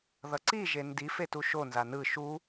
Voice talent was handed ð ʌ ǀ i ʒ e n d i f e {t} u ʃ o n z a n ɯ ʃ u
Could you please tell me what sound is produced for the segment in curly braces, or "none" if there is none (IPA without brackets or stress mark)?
t